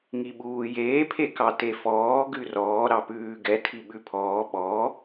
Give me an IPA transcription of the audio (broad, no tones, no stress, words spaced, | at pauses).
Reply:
ŋiɓuːjeː pʰekɑtefɔː ɡʉrɔː ɾɑpʉːɡɛ tʰiɓʉpʰɔː ɓɔ